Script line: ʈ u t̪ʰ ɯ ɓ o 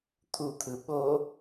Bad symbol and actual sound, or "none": ʈ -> t̪ʰ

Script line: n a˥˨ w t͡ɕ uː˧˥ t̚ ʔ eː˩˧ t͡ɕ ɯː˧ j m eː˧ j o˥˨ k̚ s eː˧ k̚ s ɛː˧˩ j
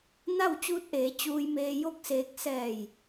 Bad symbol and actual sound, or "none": ɯː˧ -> uː˧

